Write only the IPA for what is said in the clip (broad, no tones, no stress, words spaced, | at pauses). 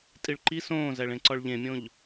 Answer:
tʼiɭǃi sõːzæɭẽ ǀɒɭʎẽmʲõʎ